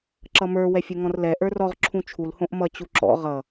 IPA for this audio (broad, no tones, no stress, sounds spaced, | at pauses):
ǁ ʌ m ə˞ w ɛ fʲ u ŋ ɔ̃ r l ɛ ʔ ə˞ r ɔ ʁ ǁʰ ũ t͡ʃʰ u l h õ ʔ m ʌ t͡ɕ u ǁ ɔ̰ ʁ ʌ